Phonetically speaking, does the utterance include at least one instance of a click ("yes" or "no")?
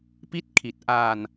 no